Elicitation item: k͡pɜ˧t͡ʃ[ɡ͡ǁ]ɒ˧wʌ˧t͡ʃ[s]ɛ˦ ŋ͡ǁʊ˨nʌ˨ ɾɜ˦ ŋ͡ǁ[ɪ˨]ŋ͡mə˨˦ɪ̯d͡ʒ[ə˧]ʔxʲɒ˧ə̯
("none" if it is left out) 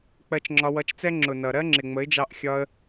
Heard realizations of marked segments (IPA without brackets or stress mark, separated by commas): ŋ͡ǁ, t͡s, ɪ˨, ɑ˧